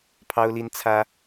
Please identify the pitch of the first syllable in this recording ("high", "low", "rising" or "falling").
high